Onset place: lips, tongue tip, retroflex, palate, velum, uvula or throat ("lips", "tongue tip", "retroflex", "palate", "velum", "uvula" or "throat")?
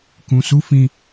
velum